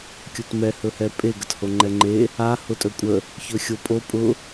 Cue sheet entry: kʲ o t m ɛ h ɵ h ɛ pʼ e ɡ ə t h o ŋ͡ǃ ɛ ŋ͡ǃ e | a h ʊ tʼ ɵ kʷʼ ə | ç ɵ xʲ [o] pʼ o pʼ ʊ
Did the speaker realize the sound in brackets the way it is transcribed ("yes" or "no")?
yes